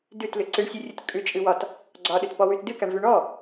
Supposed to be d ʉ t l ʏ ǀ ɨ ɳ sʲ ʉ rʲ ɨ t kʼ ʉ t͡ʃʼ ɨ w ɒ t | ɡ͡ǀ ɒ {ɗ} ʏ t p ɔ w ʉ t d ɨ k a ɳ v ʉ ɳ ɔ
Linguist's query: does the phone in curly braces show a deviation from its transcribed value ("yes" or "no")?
no